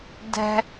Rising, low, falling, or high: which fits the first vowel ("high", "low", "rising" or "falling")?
high